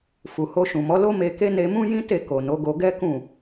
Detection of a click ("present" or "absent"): absent